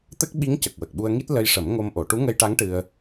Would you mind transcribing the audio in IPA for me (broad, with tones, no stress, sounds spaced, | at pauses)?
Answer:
t̪ ə˦˥ k̚ ɓ i˧˥ ŋ c ə˨˩ k̚ w ə˨˩ k̚ ɓ u˧ ə̯ ŋ i˦˥ t̚ l ə˧ j ʂ ə˨˩˦ m ŋ o˧ m ʔ o˨˩˨ ʈ u˧˥ ŋ ə˧ j ʈ a˧˥ ŋ ʈ ɨ˧ ə̯